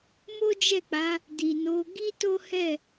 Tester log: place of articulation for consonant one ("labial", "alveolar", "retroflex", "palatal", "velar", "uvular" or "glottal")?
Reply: labial